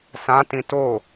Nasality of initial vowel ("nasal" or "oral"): nasal